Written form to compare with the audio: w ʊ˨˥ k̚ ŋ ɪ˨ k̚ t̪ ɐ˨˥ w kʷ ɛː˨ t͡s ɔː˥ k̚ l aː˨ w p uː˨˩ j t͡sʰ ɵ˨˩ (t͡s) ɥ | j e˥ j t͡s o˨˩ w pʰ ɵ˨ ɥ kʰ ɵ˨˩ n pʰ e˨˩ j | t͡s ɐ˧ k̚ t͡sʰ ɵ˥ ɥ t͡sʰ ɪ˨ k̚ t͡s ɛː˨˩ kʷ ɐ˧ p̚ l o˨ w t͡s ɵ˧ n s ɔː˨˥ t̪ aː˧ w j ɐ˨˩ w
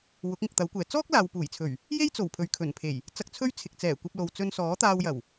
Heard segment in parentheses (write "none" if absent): none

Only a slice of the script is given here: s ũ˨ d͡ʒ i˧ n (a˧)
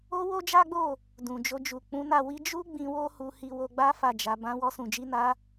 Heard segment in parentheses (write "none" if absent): a˧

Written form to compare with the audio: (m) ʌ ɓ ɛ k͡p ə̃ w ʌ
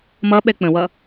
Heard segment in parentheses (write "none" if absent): m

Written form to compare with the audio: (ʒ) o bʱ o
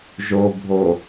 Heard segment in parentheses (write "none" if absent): ʒ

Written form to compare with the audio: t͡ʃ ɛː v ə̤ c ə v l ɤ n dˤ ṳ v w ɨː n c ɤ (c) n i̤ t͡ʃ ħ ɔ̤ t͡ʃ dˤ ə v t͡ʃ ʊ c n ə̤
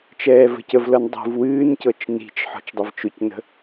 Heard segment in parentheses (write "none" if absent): t͡ʃ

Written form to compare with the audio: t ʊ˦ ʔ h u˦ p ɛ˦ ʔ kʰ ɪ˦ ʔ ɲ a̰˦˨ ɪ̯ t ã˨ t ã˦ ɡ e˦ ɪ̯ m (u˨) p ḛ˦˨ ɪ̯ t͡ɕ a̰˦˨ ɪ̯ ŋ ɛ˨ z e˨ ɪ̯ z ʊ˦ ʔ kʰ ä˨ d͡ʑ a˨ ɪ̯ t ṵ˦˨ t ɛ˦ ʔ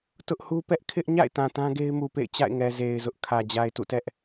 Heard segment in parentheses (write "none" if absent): u˨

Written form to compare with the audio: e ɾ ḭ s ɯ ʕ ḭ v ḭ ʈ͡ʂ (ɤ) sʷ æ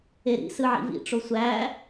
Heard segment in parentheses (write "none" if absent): o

